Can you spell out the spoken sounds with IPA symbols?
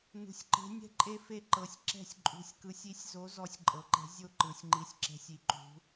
n ṳ˩˧ sʲ ǃ e̤˨˥ nʲ ɛ̤˥˨ ǃʼ e˥˨ f e˥˨ ǃ ɤ˩˧ sʲ ǁ ɛ̤˥˨ sʲ ǃʼ ṳ˨˥ sʲ k ɯ˨˥ sʲ i˨˥ sʲ z o˨˥ z ɔ˨˥ sʲ ǃʼ ɤ˩˧ ǃ ɛ̤˨˥ zʲ o˥˨ ǃ ɯ˩˧ sʲ ŋ͡ǃ i˨˥ sʲ ǁ ɛ̤˨˥ sʲ i˩˧ ǃ ṳ˩˧

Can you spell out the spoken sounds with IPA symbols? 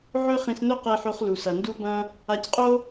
ʕ ɵ˥ χ ĩ˧ s n ɵ˥ q e˧ ħ o˧ χ l u˩ s ɐ˩ n d u˧ b ɐ̃˧ | a˧ c qʼ o˥

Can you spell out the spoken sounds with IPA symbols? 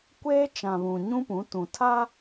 kʷ eː˦ t͡ʃ ã˨ β ũ˨ ɲ ũ˦ p ũ˨˦ t ũ˨ tʰ a˦

